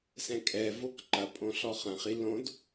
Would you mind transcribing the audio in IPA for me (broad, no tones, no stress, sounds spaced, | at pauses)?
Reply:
s ɛ̃ kʼ ɛ v o k ǃ ɐ pʼ õ ɬ ɔ χ ɐ̃ χ i l õ d